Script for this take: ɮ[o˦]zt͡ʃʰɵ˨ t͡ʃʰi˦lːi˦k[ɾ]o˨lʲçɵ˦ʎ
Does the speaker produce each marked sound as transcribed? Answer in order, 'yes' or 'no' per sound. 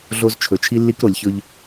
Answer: yes, yes

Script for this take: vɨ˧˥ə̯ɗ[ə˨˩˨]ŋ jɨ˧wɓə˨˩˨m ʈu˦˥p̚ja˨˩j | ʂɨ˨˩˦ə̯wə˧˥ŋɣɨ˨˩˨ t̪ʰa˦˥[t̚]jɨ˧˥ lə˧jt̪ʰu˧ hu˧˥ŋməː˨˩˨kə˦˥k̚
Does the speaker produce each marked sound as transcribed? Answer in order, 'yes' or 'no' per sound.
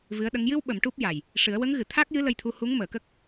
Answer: no, no

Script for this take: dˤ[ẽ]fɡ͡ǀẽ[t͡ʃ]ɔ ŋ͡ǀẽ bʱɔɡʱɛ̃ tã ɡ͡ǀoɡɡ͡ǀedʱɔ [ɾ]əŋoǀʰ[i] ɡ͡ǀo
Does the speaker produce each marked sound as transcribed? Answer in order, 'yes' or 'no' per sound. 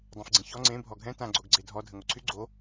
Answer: yes, no, no, no

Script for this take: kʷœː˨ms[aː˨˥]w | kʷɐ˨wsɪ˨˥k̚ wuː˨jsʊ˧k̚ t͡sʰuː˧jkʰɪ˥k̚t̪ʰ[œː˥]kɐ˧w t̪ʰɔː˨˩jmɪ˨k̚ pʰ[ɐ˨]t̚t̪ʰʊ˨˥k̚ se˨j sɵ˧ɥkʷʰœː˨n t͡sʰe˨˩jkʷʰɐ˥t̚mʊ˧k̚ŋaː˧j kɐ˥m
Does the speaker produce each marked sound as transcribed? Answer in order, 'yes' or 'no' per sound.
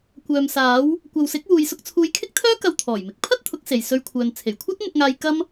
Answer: yes, yes, no

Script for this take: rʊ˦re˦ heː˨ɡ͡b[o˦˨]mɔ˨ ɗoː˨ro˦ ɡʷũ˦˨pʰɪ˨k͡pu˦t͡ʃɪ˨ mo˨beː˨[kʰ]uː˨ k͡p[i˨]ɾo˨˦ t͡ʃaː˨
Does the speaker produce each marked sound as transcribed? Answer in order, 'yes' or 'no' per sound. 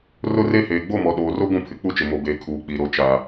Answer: yes, yes, yes

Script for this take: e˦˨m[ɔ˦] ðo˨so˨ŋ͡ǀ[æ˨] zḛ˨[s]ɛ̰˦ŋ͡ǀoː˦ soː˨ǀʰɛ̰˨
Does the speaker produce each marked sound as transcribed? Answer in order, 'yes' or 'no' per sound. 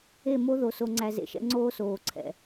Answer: no, yes, no

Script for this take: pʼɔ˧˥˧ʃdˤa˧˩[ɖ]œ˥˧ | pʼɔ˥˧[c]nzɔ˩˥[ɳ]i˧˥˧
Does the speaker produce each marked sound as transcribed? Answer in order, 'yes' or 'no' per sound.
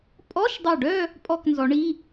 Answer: yes, no, yes

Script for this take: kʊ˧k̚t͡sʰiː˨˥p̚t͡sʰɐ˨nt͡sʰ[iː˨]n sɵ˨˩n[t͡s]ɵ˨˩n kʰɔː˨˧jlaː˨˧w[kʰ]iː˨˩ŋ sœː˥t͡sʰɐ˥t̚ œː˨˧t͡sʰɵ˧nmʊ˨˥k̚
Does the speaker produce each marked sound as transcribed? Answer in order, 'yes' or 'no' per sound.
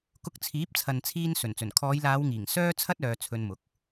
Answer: no, yes, no

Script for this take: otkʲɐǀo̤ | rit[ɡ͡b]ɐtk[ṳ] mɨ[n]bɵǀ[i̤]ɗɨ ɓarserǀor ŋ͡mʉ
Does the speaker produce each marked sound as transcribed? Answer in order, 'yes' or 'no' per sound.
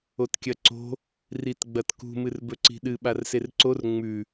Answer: yes, yes, no, yes

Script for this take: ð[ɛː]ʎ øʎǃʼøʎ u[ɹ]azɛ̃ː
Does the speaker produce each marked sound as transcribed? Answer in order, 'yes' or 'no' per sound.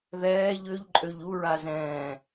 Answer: yes, yes

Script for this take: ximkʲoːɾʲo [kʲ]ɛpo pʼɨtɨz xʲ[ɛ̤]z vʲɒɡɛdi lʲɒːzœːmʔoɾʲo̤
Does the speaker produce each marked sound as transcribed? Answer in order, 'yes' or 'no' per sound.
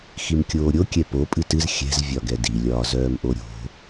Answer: yes, yes

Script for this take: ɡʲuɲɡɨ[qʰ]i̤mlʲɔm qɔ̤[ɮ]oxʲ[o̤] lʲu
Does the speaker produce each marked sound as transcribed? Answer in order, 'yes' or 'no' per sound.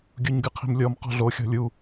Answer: yes, yes, no

